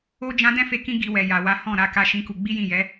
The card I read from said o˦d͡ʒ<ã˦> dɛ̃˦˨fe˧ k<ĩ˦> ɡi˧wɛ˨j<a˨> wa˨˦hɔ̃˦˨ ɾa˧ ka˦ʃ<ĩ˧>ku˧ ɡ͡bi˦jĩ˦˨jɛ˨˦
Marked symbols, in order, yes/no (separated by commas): yes, yes, yes, no